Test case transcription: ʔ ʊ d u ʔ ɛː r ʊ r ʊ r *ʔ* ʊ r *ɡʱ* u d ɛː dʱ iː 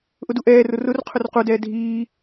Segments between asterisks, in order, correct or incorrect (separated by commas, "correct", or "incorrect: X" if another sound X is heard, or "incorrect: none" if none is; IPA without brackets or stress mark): incorrect: qʰ, incorrect: q